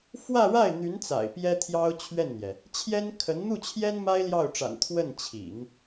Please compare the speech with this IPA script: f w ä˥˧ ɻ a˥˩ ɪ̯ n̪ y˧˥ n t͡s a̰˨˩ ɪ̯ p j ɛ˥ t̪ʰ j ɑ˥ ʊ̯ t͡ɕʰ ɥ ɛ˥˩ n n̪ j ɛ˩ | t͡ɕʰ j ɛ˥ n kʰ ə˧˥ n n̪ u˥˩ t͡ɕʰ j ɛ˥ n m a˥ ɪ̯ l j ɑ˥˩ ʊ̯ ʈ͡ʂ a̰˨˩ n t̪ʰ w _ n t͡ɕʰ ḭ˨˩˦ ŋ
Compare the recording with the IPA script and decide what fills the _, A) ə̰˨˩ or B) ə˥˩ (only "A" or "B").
B